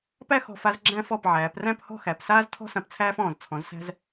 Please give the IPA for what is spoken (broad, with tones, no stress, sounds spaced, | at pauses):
p æ˥˧ x ɔ̤˧˩ f a˧ z ɡ͡ǁ æ̃˧ f ɔ˧˩ p ʕ æː˩˧ p r æ̃˥˧ p h ɔ̤˥˧ x æ˩˧ p s aː˥ z tʰ ɔ̤˥ s ã˧ p t͡sʰ æː˥ f ɔ̃ː˧˩ z t͡sʰ ɔ̃˩˧ z s æ̤˧ z